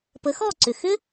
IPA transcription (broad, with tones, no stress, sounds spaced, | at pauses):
p ə˩˥ x ɔ˥˩ ǀ ʏ˩ x ʏ˥